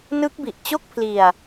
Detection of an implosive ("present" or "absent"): absent